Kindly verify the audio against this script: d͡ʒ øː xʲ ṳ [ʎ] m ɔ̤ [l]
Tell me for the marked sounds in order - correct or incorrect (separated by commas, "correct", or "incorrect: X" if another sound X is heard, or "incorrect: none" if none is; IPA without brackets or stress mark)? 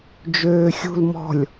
incorrect: l, incorrect: lʲ